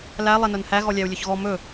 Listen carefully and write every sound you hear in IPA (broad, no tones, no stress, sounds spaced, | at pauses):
l æ lˠ ɛ n œ n h æ ɣ ɔ lʲ æ u̯ lʲ ɵ ç ɣ ɔ m ɵ